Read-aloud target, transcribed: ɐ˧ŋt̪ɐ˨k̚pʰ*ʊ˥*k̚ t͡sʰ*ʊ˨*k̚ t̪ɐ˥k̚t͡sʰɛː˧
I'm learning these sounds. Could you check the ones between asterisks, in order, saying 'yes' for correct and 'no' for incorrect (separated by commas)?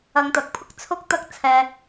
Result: yes, no